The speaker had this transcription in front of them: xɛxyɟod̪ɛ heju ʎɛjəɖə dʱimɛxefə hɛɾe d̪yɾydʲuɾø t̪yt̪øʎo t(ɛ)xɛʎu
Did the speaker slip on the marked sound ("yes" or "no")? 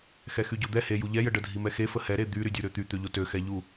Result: yes